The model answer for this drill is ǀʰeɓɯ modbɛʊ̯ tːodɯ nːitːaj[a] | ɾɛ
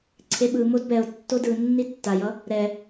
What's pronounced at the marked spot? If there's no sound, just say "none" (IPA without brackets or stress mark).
ʌ